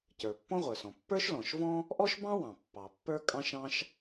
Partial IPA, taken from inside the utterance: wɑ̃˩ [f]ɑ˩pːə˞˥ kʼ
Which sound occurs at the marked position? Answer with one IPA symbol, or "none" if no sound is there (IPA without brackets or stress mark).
pː